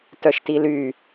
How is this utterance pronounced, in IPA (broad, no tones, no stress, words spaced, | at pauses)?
tœʃtily